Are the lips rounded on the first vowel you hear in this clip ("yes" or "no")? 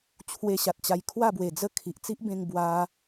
no